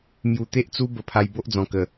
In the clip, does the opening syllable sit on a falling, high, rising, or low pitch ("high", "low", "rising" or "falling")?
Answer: low